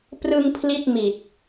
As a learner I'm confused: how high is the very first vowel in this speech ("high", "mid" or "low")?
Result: high